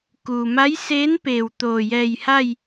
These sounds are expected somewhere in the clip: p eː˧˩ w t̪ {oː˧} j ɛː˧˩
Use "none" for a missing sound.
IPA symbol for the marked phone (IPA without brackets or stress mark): oː˧˩